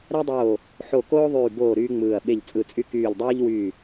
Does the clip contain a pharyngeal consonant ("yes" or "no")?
yes